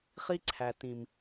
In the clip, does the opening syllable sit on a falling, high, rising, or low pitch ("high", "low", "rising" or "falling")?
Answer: high